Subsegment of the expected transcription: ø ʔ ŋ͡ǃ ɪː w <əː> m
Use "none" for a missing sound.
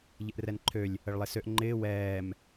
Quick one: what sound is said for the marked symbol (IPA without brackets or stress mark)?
ɛː